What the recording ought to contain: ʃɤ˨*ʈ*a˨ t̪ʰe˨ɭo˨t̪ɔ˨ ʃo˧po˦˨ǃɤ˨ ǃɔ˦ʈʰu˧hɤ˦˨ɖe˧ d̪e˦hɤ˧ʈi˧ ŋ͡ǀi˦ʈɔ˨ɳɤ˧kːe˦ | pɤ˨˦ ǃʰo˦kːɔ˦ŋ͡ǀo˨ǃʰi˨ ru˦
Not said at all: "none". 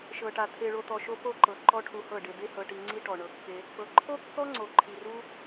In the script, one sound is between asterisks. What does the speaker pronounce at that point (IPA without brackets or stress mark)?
ʈ